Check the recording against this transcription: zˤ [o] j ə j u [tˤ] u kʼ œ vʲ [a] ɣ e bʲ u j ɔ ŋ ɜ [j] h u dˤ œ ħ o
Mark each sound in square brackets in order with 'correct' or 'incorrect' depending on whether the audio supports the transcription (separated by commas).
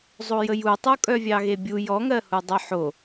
correct, correct, incorrect, incorrect